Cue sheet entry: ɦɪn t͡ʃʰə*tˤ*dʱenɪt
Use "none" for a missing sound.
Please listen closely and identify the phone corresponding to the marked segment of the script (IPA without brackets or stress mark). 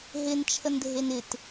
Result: n